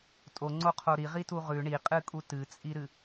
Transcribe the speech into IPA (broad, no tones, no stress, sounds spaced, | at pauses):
tʼ o ŋ͡ǀ o qʰ o ɾ i ʁ i t u ʁ ʉ ɳ i qʼ ɨ kʼ u t ɨ t͡sʼ i ɾ ɨ